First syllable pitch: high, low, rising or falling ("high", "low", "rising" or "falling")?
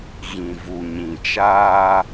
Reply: low